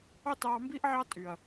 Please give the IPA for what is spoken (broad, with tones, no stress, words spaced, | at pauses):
ɑ˦tɑː˧mbiː˦ʔʕɑ˦ tʼy˨ɐ̯